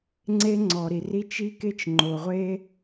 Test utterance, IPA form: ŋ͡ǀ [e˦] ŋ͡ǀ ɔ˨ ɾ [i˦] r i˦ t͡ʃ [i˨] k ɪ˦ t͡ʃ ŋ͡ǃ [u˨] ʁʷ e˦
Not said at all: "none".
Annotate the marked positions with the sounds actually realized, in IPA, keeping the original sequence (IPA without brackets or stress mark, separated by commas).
e˦, i˨, i˦, o˨